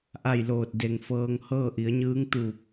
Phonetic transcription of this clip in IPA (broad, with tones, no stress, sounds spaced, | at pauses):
ʔ a˥˨ j l oː˧˩ t̚ d e˧˩ ŋ f ɤː˧ ŋ h ɤː˥˨ ʔ i˩˧ ə̯ ɲ ɯː˧˥ ŋ t̪ uː˧˩ p̚